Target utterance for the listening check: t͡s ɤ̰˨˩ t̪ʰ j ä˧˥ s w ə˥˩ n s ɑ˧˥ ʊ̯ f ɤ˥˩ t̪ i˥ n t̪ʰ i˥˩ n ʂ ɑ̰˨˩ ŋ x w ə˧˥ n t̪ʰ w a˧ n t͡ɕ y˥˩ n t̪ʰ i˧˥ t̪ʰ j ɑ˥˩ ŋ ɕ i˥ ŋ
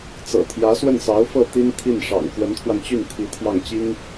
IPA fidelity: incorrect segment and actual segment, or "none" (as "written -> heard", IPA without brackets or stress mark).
ɕ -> t͡ɕ